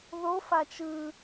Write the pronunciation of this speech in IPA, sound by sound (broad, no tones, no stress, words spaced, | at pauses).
ðofa t͡ʃɯ